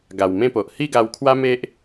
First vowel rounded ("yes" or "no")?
no